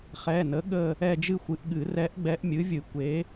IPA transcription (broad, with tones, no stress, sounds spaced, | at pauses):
χ ɛ˩˧˩ n ə˩˥ ɠ ə˦˨ | ɛ˦˨ d͡ʒ ɨ˦˨ xʷ ɨ˩˥ ʔ ɠ ɨ˨˩˦ r ɛ˧˥ ʔ ɡ͡b ɛ˧˥ ʔ mʲ ɨ˩˥ vʲ ɨ˨˩˦ kʷ e˩˥